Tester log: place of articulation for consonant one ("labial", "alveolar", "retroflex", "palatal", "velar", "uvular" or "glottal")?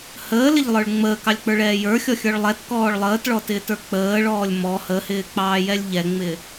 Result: glottal